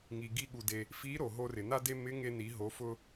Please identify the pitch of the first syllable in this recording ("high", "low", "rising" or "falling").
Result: low